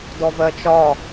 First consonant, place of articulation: alveolar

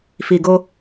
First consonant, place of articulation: labial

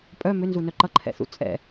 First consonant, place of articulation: labial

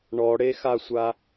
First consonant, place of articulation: retroflex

